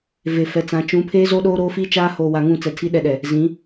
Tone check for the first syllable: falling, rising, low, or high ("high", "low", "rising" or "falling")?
low